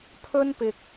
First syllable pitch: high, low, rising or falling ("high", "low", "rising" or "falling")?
high